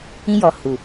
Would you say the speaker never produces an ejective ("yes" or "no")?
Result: yes